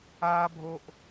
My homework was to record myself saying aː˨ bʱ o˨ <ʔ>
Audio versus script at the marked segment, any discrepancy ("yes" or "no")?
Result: no